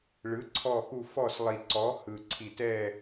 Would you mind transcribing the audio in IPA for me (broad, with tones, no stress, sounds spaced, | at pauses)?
ɭ ɯ˨˥ ǀʰ ɔ˦˨ x u˦˨ f ɔ˦˨ s lˠ i˨ ǀ ɔ˨˥ h ɯ˨ ǀʰ i˨ t ɛ˦˨